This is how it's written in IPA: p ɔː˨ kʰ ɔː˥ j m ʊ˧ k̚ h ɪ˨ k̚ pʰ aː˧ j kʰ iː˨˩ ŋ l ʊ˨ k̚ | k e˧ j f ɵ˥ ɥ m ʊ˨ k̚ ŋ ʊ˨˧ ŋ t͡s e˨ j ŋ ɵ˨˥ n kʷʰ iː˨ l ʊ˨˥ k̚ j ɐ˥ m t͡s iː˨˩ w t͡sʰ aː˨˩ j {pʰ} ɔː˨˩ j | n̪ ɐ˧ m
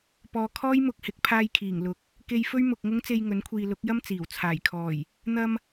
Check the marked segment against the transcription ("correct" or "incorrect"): incorrect